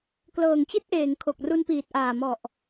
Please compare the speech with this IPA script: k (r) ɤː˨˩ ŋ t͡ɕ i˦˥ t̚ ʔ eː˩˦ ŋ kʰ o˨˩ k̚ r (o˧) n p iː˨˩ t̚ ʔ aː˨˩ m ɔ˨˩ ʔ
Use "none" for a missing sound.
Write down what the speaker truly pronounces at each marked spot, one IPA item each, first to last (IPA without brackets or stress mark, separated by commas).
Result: l, u˧